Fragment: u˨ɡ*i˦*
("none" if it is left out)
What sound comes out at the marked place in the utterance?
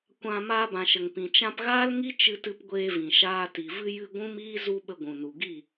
i˦˨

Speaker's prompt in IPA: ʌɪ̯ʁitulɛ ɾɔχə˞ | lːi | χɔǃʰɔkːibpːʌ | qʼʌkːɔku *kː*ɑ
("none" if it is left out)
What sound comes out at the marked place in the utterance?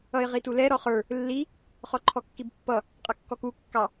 kː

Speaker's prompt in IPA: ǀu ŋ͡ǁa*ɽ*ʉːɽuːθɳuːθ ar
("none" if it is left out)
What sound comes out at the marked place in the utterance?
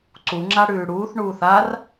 ɽ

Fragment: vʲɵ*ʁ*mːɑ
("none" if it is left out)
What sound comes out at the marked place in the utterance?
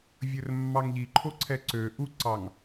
r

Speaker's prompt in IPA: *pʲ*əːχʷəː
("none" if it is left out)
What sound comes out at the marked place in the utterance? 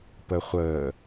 p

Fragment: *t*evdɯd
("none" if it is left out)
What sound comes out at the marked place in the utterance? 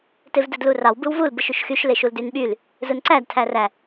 t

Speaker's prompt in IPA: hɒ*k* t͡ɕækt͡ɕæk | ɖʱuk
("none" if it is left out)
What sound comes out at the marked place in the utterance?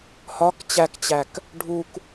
k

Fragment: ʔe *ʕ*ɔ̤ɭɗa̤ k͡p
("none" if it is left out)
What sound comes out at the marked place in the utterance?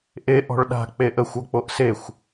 ʔ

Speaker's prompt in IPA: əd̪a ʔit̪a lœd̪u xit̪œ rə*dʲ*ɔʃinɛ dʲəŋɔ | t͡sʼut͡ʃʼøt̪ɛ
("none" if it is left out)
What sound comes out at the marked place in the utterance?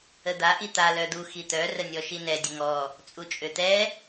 nʲ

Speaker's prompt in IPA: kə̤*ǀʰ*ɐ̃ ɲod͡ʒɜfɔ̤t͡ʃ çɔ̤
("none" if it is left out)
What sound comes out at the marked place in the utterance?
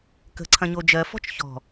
ǀʰ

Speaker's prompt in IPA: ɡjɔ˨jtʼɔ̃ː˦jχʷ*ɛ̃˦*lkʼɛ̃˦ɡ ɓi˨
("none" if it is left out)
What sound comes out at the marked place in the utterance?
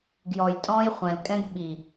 ɛ̃˨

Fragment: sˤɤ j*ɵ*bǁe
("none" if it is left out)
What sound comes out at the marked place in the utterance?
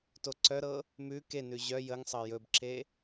ɵ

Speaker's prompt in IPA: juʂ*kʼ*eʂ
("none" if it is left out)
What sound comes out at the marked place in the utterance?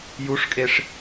kʼ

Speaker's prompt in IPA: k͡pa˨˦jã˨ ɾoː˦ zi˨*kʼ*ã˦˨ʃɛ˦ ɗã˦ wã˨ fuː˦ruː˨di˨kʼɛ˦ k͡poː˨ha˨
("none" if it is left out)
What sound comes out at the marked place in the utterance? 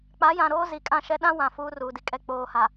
kʼ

